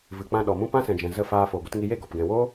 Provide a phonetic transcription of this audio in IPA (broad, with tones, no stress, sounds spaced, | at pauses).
v ɨ˨ k͡p ã˧ ɗ ɔ˨ m ũ˦ p ã˦ s ɛ̃˨ d͡ʒ ɛ̃˨ z ə˦˨ f aː˧ f o˨ ɡʷ ɨ˧ t ŋ i˧ j e˦˨ ɡ ɔ˨ p ɡ ɛ̃˨ w oː˦